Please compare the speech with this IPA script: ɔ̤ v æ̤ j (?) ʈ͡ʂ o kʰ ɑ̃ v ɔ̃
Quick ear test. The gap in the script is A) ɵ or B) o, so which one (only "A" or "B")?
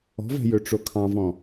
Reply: A